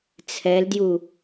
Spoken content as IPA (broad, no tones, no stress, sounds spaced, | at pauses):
t͡sʰ ɛ l d j u